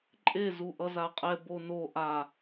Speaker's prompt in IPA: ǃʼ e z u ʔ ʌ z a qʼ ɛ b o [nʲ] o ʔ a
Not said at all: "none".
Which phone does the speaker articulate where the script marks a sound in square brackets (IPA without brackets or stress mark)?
n